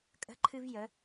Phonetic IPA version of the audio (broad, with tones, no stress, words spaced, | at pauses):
kʼə̤˥ǃʰɨ˥vjə˧˥